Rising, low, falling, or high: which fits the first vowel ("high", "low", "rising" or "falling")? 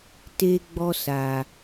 high